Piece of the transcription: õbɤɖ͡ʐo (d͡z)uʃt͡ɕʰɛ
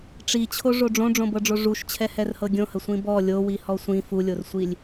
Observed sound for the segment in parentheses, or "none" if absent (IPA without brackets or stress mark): ʐ